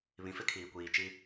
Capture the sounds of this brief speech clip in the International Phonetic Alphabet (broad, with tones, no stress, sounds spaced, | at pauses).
β ĩ˨ f ɪ˦ kʰ iː˨ kʷ iː˨ t͡ʃ i˦